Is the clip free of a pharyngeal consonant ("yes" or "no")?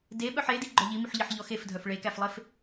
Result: no